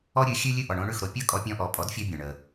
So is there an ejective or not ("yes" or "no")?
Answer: yes